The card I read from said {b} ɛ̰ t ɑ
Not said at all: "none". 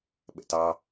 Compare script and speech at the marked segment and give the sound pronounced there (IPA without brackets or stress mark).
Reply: ɓ